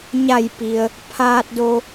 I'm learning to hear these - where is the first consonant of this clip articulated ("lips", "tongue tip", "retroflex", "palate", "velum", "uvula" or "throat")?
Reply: palate